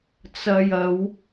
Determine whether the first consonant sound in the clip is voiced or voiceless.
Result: voiceless